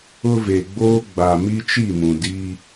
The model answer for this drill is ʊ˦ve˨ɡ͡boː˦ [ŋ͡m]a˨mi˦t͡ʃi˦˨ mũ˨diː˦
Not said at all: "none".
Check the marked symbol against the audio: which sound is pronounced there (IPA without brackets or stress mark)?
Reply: ɡ͡b